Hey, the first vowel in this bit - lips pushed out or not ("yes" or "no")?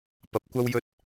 no